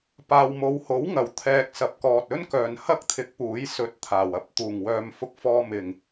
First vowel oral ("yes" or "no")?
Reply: yes